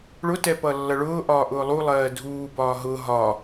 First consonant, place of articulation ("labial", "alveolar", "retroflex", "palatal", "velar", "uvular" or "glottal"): retroflex